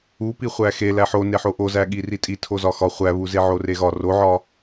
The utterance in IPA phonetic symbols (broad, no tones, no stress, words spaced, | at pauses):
u piχʷæxe læħoneħo ʔozæɠi ritʼi tʰozɒxɒ χʷæβuze ʕoreɣɒ roʕɒ